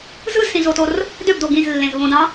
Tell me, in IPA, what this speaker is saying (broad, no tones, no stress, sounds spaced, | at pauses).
z ɯ z s ĩ z o t o r | d ø b d o ɡ ĩ z lː ẽ z β õ d ɑ̃